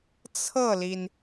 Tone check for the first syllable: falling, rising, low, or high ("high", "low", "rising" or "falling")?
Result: falling